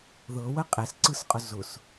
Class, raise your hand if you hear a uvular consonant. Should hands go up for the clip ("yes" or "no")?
yes